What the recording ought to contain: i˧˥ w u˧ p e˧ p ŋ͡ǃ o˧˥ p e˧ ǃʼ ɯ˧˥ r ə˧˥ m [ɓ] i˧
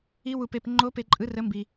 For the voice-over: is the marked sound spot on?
no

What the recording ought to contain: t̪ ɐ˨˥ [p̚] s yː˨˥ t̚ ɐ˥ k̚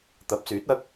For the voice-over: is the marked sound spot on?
yes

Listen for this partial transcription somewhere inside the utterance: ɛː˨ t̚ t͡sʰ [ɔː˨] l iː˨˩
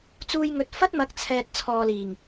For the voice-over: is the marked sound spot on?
yes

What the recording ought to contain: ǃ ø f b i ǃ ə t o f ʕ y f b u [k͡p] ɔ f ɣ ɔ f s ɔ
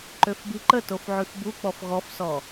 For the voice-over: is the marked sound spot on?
yes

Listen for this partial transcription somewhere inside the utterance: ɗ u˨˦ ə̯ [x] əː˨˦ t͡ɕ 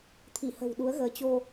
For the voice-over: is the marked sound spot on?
no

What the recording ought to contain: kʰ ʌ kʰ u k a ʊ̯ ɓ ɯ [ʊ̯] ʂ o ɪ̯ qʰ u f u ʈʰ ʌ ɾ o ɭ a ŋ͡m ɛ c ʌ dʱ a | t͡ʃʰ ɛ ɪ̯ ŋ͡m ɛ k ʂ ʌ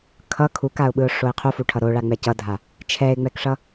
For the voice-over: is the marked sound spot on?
yes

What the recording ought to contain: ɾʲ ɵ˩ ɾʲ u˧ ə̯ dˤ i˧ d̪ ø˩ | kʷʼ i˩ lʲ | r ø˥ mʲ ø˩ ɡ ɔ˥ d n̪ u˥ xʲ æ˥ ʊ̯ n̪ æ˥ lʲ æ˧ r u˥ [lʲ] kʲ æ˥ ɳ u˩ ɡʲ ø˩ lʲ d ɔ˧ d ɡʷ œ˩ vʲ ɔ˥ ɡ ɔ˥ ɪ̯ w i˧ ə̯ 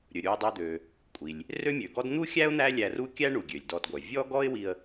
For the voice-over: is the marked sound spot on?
no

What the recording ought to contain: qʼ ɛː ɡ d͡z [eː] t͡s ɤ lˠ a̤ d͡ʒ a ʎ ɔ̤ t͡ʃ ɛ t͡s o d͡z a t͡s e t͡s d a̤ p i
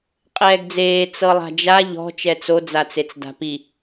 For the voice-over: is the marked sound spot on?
yes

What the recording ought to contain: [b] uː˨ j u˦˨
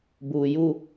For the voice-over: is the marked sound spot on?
yes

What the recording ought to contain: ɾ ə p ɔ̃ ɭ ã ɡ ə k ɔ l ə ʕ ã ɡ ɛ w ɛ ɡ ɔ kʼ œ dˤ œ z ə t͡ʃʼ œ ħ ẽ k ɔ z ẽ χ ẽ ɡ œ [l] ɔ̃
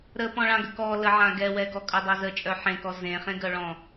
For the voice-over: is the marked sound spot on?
no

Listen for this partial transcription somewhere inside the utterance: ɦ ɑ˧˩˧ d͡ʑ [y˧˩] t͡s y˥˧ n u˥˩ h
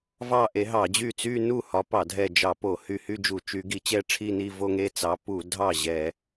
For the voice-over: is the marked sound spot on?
no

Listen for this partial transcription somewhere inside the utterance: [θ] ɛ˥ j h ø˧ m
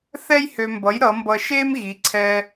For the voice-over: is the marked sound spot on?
yes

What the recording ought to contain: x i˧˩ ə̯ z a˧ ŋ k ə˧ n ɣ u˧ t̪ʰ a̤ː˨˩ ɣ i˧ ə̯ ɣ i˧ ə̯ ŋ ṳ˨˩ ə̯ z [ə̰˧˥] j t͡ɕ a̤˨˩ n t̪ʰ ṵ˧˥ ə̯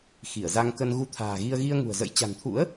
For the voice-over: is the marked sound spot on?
yes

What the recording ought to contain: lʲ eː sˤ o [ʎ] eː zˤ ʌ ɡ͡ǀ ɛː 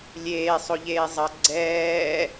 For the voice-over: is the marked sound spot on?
yes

